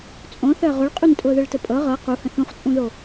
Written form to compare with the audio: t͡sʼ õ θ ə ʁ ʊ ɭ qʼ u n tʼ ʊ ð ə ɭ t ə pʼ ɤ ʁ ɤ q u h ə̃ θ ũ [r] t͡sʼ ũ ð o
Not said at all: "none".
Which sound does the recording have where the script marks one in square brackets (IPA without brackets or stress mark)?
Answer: χ